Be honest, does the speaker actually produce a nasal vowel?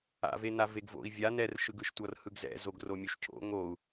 no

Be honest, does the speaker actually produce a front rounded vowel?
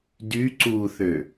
yes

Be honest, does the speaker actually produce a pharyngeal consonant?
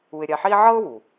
yes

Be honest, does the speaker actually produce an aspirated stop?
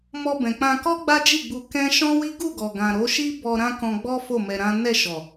no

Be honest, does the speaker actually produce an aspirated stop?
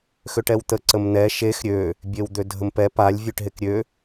no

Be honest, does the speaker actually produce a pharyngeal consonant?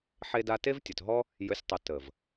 yes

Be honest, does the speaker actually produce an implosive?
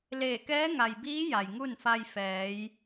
no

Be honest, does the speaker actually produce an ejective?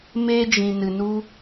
no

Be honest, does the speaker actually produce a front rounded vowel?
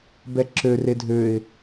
yes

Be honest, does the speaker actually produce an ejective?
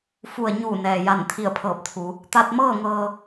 no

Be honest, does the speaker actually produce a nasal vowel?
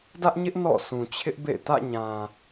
yes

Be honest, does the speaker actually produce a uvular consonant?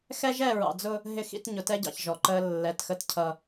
no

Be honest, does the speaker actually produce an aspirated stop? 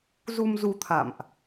yes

